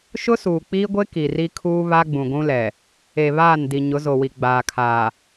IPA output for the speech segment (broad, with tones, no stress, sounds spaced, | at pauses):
ʃ ʊ˦ s uː˨ k͡p iː˦ ɡʷ e˦ k i˨ r i˦ kʰ uː˦ β a˦ ɡ͡b ũ˨ ɡʷ ũ˦ l ɛ˨ | e˨ β aː˦˨ n d i˨ ɲ ʊ˨˦ z o˨ w i˨ ɡ͡b aː˨ kʰ aː˨